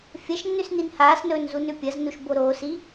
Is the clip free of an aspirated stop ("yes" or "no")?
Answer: yes